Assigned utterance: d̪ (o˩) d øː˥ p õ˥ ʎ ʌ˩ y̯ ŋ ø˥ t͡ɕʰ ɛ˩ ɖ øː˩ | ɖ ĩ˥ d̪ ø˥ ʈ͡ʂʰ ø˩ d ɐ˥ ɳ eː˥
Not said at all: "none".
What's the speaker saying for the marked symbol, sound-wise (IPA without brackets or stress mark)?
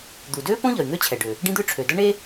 u˩